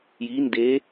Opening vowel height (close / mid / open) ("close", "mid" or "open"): close